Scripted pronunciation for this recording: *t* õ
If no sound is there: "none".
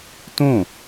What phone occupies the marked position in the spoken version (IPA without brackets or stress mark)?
t